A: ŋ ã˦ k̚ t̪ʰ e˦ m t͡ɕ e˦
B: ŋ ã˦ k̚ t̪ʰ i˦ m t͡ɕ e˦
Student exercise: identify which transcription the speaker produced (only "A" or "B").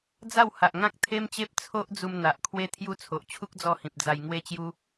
A